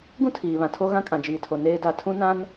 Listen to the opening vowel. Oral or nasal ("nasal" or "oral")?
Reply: nasal